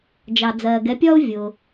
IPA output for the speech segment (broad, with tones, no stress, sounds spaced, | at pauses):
d͡ʒ ɑ˨ d͡z ɜː˨ ɡ ɛ˨˦ pʲ ɒ˥ ʊ̯ vʲ ʊ˨